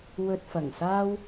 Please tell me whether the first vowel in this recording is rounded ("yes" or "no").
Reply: yes